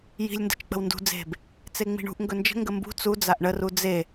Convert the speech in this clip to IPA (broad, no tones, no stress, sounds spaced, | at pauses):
j i̤ lʲ n d ə̤ t͡ʃ k͡p ə̤ w n d ṳ d͡z e̤ b | t͡s e ŋ͡m i̤ ɳ ṳ ʔ ŋ ɡ ɵ n d͡ʒ ə̤ ŋ ɡ ə m b ṳ t͡s u d͡z a ʔ ɳ ə r u d͡z e